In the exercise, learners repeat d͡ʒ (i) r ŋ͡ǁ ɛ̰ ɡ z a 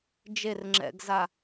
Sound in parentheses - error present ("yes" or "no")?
yes